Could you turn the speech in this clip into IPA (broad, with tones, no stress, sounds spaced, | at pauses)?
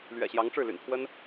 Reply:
l ɥ ɛ̰˨˩ ɕ j ɑ˧˥ ŋ ʈ͡ʂ ɻ̩˥˩ l y̰˨˩ n pʰ w ə˥ n